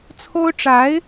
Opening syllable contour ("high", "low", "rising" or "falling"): high